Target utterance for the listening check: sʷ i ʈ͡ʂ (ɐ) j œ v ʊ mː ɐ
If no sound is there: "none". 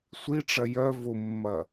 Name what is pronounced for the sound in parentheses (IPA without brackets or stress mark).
ɐ